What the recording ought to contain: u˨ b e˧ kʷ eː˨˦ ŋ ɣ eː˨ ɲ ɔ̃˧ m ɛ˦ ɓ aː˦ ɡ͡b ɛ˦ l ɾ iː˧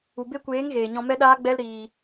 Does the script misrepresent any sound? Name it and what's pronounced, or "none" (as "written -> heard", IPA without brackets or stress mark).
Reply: ɓ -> ɗ